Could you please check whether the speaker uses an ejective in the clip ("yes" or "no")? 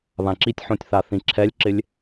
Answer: no